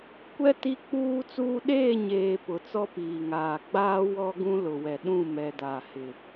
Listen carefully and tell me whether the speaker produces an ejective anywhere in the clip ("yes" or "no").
no